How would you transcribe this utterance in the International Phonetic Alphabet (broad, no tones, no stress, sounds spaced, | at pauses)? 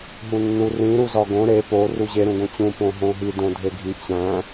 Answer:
ɦ ũ nː u r ĩ ɾ u z ɒ ɡ õ ɾ e p o r u ʑ e ɾ ũ ɡ õ t͡ɕ ũ p õ ɦ õ ɦ i d õ dʱ e ɡʱ i t͡ɕ æ̃